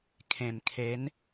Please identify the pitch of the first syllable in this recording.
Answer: low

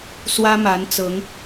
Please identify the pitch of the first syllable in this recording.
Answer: high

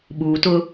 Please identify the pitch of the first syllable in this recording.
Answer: low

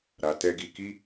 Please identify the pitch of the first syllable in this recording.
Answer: low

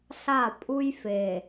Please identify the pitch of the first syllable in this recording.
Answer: falling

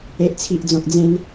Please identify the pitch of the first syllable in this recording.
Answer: low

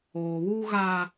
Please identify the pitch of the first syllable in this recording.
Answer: low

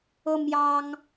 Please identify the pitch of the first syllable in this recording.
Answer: high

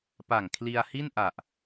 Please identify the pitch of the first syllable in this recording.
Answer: low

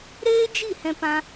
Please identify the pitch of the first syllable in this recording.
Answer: high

